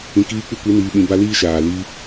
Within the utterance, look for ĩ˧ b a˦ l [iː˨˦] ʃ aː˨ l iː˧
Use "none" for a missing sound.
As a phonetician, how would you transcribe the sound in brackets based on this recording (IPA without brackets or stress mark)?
iː˦